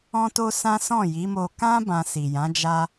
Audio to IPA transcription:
ɔ̃˦ t o˦ s ã˦ s ɔ̃˦˨ j i˨˦ m o˧ k ã˦ b ã˧ s i˨ j ã˨˦ d͡ʒ a˧

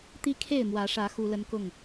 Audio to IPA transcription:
t̪ i˦ kʰ e˥˨ ɪ̯ m w ä˨˦ ʂ ä˨˦ x u˦ l ə˦ n k ʊ˥˨ ŋ

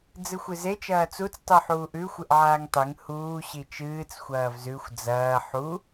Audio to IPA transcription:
d͡z ɨ xʷ ɨ z e t͡ʃ ɐː t͡s u t͡s tˤ u ħ uː ʔ ʉ xʷ ɨ ʔ ʕ aː ŋ tˤ e ŋ h uː ɕ i t͡ʃ ɨː t͡s xʷ ɐː v z ʉ xʷ d͡z ɐː ħ u

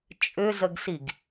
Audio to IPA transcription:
t͡ʃʼ ʏ z ə ɡ s i ɡ

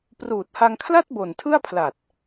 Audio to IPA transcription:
p r uː˨˩ t̚ h a˧ ŋ kʰ l a˥˩ t̚ b o˨˩ n tʰ ɯ˥˩ a̯ pʰ l a˨˩ t̚

